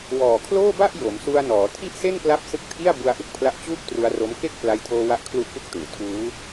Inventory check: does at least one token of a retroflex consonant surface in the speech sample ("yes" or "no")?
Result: no